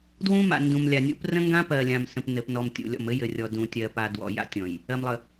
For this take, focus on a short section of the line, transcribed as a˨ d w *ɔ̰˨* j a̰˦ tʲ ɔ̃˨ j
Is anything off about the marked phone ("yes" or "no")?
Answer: no